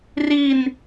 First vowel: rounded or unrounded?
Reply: unrounded